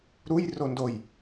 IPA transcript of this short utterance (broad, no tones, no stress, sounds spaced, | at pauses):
ɾ u j r o n d o j